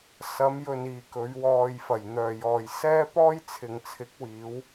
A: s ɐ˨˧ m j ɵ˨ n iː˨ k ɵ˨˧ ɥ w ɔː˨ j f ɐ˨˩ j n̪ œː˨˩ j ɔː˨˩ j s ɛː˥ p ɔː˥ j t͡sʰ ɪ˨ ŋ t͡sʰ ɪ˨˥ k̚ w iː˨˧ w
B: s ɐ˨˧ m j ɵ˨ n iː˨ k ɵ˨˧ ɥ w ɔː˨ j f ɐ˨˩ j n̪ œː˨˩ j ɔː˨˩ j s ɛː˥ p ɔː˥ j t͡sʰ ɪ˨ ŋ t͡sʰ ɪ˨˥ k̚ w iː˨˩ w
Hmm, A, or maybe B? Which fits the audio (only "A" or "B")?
A